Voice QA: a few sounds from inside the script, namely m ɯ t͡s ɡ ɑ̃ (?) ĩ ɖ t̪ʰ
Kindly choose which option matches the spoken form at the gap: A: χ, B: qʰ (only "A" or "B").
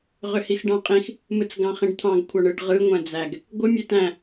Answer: A